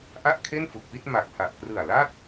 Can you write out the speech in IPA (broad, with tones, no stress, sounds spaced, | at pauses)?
ʔ a˥˩ ʔ kʰ e˥˩ n f u˨˩ k̚ p i˥˩ t̚ m a˨˩ k̚ h a˨˩ ʔ k r ɯ˨˩ a̯ l a˥˩ t̚